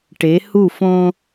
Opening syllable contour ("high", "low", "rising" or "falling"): rising